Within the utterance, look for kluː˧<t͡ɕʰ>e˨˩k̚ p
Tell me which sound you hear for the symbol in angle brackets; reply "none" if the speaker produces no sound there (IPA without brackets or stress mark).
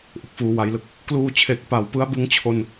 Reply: t͡ɕʰ